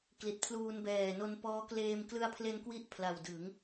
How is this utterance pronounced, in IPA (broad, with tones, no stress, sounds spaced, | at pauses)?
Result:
k l i˨˩ t̚ pʰ l uː˧ n b ɛː˨˩ n o˧ n p ɔː˦˥ k l eː˧ m k l ɯ˧ a̯ pʰ l e˧ n k w i˦˥ ʔ pʰ l a˨˩ w d ɯ˩˦ ŋ